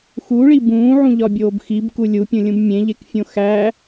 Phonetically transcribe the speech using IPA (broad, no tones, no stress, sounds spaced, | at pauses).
x u ɭ i b ũː ʕ ũ ʎ ɒ bʲ oː b x i b k u lʲ u pʲ ũ lʲ ũ b mʲ ẽ ʎ e k fʲ õ x æ